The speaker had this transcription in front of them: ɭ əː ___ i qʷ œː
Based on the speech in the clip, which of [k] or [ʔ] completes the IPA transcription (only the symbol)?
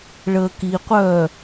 k